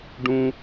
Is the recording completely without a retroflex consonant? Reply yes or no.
no